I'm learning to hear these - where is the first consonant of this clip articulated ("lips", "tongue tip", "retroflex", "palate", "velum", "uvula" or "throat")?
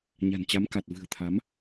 palate